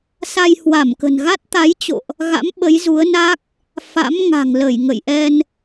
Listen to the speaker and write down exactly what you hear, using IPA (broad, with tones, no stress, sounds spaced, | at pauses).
s a˧ j h w a˧˩ m k ə̤˨˩ n ɣ a˦˥ t̚ t̪ a˨˦ j t͡ɕ o̰˧˨ ʔ | ɣ a̰˧˥ m ɓ ə˨˦ j z u˨˦ ə̯ n a˦˥ k̚ | f a̰˧˥ m ŋ a̤˨˩ ŋ l ə˧˩ j ŋ ə̰˧˨ j ʔ ɛ˧ n